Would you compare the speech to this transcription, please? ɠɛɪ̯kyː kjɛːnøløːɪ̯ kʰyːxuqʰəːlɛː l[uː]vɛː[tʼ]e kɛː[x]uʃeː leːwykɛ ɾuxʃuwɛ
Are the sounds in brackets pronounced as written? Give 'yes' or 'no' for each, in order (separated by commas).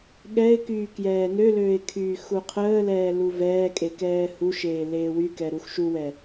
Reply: no, no, no